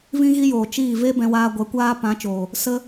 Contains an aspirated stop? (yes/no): no